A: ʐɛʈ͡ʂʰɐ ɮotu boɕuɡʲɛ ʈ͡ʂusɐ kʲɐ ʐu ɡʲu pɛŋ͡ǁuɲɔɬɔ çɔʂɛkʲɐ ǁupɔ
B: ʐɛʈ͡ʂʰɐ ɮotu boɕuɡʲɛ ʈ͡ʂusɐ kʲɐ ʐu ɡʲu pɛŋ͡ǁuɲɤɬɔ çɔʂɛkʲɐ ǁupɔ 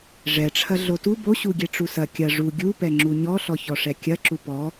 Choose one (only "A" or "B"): A